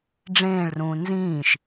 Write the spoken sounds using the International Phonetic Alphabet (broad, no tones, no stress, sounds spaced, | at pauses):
ɖ͡ʐ ẽː ɭ r ũː n z ĩː ʃ